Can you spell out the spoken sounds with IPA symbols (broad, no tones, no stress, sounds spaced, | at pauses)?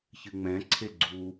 ç ɨ ŋ͡m ɛ̃ ǀʰ e ɡ͡ǀ u